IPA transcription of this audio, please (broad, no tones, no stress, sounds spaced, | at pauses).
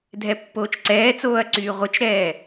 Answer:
dʱ ɛ pː oː t͡ʃ ǀ ɛː t͡s oː ɐ̯ ǀ yː ʁʷ ə t͡ʃ ɾ ɛː